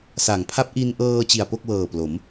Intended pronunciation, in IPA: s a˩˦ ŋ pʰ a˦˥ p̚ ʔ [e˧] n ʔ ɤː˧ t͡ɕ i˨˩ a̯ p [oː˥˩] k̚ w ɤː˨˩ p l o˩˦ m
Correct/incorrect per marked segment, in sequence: incorrect, incorrect

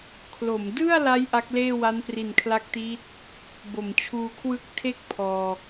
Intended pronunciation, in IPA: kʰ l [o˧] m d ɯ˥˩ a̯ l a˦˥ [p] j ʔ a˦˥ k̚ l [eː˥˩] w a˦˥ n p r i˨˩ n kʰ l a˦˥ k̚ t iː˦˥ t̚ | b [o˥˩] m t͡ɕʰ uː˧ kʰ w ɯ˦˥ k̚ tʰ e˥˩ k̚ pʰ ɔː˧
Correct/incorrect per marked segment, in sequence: incorrect, incorrect, correct, incorrect

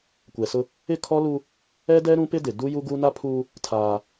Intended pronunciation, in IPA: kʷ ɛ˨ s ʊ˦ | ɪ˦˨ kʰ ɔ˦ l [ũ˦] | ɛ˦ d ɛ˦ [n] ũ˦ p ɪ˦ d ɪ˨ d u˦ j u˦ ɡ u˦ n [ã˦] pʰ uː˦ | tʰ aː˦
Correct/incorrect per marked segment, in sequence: incorrect, incorrect, incorrect

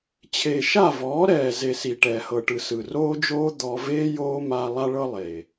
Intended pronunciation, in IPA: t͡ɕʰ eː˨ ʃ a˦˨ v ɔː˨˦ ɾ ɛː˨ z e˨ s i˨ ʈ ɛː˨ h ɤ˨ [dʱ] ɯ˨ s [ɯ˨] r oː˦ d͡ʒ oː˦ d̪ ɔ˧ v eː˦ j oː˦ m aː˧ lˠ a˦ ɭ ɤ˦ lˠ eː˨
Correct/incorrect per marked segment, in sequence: incorrect, correct

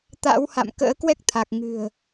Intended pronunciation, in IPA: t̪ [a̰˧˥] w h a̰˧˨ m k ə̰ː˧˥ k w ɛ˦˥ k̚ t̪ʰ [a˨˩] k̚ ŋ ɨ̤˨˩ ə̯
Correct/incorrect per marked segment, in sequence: correct, correct

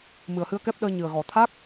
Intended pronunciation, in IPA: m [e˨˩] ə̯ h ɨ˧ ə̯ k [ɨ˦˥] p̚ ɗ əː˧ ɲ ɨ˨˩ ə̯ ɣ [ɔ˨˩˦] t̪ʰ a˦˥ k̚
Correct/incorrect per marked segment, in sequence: incorrect, incorrect, correct

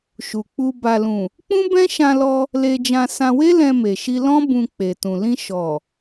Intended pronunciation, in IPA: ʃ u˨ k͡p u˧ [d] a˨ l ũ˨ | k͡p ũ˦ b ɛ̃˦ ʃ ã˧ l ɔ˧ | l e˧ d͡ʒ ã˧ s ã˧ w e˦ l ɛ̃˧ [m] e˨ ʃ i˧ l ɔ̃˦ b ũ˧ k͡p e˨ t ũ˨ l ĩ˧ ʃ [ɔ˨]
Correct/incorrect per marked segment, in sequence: incorrect, correct, correct

